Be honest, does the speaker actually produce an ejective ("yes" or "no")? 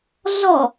no